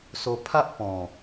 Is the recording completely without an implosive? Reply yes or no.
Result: yes